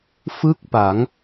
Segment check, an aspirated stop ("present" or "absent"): absent